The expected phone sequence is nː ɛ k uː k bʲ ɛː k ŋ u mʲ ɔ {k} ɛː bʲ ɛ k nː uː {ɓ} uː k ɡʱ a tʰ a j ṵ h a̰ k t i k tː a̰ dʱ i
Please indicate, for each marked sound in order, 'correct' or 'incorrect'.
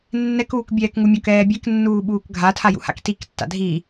correct, correct

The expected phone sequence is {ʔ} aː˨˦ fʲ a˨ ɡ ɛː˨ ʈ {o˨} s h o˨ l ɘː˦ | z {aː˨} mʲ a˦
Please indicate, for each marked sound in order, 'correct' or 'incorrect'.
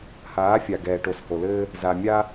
incorrect, correct, incorrect

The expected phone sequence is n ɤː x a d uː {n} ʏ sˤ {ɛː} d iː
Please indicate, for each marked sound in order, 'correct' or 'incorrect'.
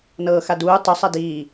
incorrect, incorrect

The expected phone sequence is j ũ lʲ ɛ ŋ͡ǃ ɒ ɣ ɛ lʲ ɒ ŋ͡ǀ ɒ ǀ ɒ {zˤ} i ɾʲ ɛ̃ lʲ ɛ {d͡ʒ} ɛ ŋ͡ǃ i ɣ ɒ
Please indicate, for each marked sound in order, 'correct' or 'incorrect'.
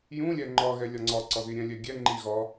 incorrect, incorrect

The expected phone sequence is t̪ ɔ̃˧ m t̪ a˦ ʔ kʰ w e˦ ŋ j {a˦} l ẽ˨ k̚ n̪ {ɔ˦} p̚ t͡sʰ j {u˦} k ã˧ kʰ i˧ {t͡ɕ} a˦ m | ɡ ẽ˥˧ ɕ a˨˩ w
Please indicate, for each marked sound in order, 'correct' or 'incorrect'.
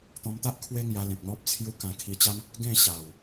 incorrect, correct, correct, correct

